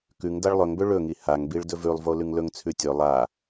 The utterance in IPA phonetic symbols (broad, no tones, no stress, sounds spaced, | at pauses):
k ʉ ŋ d a ɭ lˠ ɵ ŋ b ɵ ɭ ɵ ŋ i h a ŋ b i ɭ d ɵ v ʉ lˠ v o l ʉ ŋ l ɵ ŋ t͡sʰ ʉ tʲ ɵ lˠ a